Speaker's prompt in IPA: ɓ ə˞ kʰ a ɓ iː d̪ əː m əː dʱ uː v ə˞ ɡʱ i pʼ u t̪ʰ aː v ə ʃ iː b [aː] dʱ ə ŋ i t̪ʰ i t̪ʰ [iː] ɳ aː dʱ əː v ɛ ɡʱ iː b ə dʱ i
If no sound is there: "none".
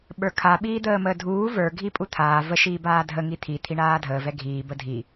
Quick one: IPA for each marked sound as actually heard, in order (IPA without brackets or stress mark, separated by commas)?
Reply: aː, i